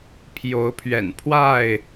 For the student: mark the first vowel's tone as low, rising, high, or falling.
rising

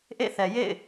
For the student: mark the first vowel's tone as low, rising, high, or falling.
falling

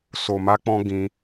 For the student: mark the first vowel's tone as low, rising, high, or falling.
low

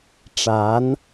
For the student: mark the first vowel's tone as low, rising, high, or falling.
rising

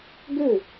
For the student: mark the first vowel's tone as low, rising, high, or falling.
falling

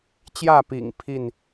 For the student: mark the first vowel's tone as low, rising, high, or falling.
falling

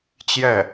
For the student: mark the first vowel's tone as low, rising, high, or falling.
falling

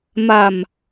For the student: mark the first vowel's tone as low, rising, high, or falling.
low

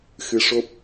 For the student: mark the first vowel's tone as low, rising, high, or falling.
rising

